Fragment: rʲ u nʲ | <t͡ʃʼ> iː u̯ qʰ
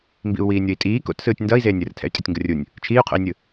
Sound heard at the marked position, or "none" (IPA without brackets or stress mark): t͡ʃʰ